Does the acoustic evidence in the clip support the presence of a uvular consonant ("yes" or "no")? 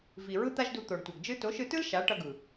no